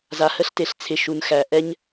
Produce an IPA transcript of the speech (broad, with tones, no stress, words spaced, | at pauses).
za˨hə˦ɬte˨ɬ t͡sʰɪ˨ ʃu˨nxæ˨ ʔɛ˦ɲ